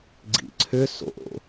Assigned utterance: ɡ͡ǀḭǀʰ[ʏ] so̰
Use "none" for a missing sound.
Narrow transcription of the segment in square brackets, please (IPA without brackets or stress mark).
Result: ʏ